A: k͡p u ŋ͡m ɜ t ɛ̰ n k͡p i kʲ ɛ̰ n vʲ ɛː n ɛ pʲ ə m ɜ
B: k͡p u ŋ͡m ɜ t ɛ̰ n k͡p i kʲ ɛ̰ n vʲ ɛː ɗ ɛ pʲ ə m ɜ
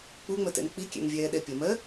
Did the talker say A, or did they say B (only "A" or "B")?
B